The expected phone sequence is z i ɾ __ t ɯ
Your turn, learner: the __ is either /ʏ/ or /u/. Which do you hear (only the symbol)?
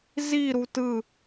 u